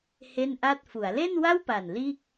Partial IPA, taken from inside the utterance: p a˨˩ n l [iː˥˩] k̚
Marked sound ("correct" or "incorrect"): correct